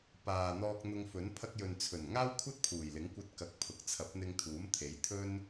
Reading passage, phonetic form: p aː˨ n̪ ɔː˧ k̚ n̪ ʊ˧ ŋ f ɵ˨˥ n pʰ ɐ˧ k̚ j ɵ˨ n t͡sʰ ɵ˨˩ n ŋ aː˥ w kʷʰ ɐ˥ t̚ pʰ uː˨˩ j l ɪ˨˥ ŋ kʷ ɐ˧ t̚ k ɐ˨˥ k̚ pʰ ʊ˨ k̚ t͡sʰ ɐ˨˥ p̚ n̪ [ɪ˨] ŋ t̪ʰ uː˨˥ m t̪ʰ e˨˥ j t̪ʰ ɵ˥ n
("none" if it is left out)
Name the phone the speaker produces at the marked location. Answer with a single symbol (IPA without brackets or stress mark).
ɪ˧